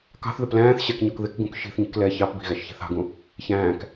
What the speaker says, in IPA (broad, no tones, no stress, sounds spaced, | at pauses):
k ɑ̤ θ ð ɪ p l æ̃ː θ ɕ ɛ k ɲ ɔ k ð ɪ k ɡ ũ k ʃ i̤ θ ɲ i̤ k l ɛ ç ɑ p b i̤ ɣ æ ʃ ç i̤ θ ɑ̤ ɡ ũ | ç æ̃ː k